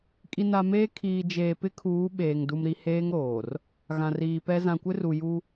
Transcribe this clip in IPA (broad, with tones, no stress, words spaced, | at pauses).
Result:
kʼi˨na˨meː˦ kʰiː˨d͡ʒeː˨ pɪ˦kʰuː˨˦ ɓeː˨ŋ du˨mɾi˨ heː˦ŋɾoː˨r | ɣã˨riː˨pɛ˦ zã˨kʷɪ˦ru˨ ju˦